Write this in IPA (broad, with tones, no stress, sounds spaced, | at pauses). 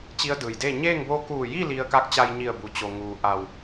t͡ɕ i˧˥ ə̯ d ɯː˩ j d eː˥˨ ɲ eː˥˨ ŋ b o˧˥ k uː˧˩ j i˥˨ l i˧ ə̯ k a˧˥ k̚ t͡ɕ a˧ j ɲ i˧˩ ə̯ b u˩˧ t͡ɕ o˩ ŋ uː˩ ʔ a˧˩ w